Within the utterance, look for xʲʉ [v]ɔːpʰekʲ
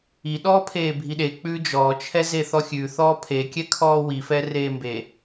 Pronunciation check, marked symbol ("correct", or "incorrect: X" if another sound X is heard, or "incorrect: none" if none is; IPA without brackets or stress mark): incorrect: θ